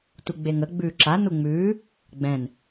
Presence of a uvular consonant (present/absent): absent